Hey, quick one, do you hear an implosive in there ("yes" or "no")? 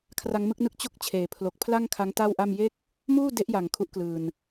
no